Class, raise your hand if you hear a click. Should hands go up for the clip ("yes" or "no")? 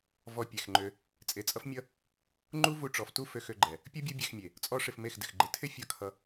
yes